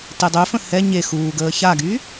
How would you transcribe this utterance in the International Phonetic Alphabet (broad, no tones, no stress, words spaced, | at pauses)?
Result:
tedˤøfə̃ hɛ ɲe xuːɡəː çaɡy